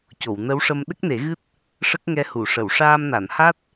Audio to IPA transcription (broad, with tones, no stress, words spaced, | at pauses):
co˨˩˨wnə˧˥wʂə˧m ɗə˦˥k̚ne˨˩˦ɣɨ˦˥t̚ | ʂə˦˥k̚ŋɛ˧hu˨˩˨ʂə˨˩˨w ʂaː˧mna˨˩˨nha˦˥t̚